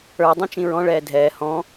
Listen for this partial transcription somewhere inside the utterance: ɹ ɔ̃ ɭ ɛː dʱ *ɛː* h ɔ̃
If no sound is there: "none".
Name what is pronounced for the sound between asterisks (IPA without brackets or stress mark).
ɛː